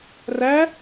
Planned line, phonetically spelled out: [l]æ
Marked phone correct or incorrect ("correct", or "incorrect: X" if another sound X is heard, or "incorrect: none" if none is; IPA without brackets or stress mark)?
incorrect: r